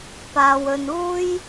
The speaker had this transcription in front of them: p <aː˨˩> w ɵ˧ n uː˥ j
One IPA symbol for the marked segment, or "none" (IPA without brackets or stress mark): aː˧